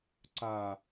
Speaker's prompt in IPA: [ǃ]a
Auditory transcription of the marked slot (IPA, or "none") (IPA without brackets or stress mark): ǀ